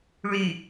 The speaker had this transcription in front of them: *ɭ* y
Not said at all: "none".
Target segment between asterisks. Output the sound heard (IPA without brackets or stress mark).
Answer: ɭ